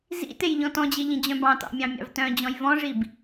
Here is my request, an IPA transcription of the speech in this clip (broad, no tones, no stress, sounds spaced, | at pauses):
z ḭ t e j ʎ ɔ̃ t ɔ̃ d͡ʑ e ʎ ĩ d͡ʑ œ̃ b ɑ̃ t ɑ̰ mʲ ɑ̃ mʲ ɑ̰ v t œ̃ d͡ʑ ɔ̃ j v ɔ̃ ʐ i b